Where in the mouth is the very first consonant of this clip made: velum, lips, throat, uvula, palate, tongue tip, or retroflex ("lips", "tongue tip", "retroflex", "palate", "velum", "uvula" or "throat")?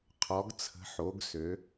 uvula